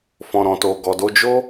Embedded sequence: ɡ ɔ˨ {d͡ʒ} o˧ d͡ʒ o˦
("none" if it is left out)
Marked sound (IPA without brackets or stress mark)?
d